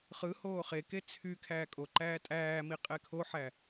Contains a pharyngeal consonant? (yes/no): yes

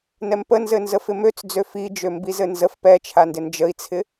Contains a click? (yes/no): no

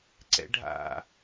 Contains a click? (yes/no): yes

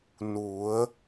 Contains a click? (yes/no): no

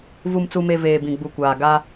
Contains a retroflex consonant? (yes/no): no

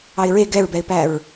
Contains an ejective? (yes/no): no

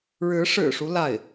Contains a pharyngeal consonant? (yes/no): no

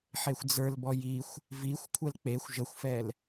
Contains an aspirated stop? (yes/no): yes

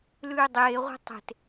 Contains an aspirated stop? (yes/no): no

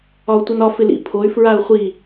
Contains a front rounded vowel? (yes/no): yes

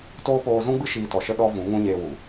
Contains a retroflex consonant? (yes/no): no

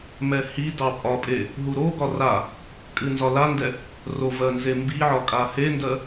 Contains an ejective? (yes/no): yes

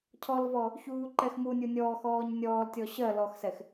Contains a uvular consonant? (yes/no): no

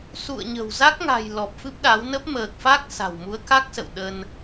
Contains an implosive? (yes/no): yes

